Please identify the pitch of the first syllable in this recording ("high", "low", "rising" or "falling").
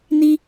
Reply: high